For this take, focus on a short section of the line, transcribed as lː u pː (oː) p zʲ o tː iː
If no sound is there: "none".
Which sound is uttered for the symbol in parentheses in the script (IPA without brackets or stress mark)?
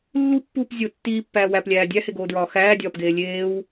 uː